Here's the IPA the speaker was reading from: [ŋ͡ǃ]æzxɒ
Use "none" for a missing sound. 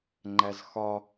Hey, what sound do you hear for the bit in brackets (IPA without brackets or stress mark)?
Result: ŋ͡ǃ